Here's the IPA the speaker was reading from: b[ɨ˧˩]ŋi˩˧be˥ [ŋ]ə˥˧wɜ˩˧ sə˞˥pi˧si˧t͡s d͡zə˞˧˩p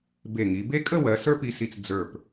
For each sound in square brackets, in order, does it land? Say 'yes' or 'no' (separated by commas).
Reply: no, no